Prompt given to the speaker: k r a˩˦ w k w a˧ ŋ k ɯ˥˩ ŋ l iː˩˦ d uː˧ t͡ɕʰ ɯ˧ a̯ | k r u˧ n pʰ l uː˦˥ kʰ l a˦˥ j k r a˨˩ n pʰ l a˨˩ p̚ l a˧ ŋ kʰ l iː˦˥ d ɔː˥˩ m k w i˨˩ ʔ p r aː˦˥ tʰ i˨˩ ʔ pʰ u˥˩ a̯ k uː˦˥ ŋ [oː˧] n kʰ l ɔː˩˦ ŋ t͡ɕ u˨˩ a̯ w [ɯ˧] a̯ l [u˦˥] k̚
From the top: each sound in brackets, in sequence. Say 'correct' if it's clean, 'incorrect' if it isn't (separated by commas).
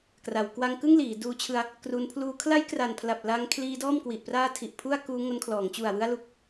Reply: incorrect, correct, incorrect